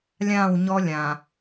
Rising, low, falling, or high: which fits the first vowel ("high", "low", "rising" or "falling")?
falling